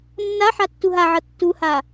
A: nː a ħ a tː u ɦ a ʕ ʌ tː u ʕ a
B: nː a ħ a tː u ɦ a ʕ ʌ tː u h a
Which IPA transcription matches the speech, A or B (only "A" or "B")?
B